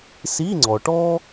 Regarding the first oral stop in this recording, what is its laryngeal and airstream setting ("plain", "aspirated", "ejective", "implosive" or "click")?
click